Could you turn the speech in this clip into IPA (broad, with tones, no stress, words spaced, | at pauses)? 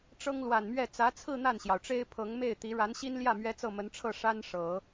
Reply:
ʈ͡ʂɤ˥ŋlwa˨˩nmɥɛ˥˩ t͡sä˧˥t͡sʰɹ̩˥˧ n̪a˥˩nɕjɑ˩ʊ̯ʈ͡ʂe˥ɪ̯ pʰɤ˧˥ŋ me˥˩ɪ̯t̪i˧˥ ɻa˧˥nɕi˥nljä˥˩ mɥɛ˥t͡sɤ˥˩mə˧˥nʈ͡ʂʰɤ˥˩ ʂa˥nʂɤ˨˩˦